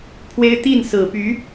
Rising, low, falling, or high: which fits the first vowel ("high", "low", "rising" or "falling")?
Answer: high